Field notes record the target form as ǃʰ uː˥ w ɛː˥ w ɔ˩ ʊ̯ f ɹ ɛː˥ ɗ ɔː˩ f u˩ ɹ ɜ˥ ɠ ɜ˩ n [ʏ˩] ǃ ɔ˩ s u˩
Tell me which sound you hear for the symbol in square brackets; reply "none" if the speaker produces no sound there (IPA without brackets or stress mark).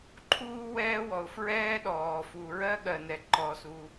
ɛ˩